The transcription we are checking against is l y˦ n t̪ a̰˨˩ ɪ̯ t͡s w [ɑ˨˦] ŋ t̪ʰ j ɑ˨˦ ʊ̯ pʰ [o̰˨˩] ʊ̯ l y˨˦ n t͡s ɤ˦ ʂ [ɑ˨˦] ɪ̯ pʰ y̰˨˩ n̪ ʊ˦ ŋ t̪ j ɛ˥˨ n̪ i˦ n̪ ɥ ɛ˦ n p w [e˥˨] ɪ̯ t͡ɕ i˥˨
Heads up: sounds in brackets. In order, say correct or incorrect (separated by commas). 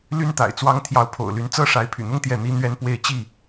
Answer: incorrect, correct, incorrect, correct